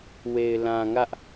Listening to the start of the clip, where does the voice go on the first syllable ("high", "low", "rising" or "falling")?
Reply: low